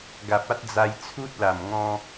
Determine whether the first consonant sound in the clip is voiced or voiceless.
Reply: voiced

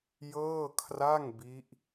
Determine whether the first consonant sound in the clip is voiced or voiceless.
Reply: voiced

